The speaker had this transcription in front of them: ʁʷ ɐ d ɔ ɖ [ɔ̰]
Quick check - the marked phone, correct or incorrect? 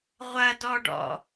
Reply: correct